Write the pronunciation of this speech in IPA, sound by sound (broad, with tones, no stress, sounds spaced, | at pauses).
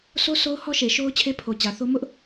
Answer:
sʰ o˦ s o˦ ʊ̯ h ɔ˦ ʃ e˨ ʃ o˦ ʊ̯ t͡ɕʰ e˦ pʰ o˨ t͡ɕ ä˨ θ o˦ m ʊ˦ ʔ